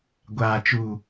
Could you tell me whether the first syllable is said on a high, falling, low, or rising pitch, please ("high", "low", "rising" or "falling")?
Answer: low